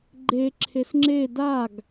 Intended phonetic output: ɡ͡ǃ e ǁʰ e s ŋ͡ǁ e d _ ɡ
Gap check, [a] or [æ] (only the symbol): a